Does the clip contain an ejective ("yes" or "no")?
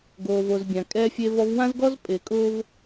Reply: yes